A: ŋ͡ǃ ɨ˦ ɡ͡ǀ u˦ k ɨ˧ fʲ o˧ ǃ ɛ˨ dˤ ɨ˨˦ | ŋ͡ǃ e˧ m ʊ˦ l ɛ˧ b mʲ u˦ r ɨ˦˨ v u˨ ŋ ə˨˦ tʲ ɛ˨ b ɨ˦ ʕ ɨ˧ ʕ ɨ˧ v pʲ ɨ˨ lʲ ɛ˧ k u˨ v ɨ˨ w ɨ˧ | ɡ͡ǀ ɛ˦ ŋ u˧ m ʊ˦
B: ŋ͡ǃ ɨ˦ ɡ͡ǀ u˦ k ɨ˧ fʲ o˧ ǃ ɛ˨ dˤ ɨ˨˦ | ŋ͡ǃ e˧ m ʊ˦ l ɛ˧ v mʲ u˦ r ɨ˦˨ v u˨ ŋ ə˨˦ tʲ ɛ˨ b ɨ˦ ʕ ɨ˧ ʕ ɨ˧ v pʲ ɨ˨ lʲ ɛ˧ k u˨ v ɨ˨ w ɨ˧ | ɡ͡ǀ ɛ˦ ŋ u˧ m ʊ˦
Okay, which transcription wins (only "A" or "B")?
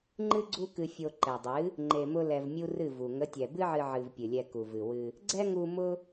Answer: B